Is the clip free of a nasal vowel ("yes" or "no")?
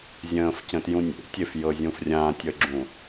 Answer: no